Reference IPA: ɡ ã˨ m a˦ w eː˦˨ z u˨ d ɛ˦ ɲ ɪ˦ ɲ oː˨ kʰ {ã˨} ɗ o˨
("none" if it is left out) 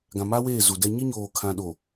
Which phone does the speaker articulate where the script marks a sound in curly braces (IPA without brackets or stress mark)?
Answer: ã˨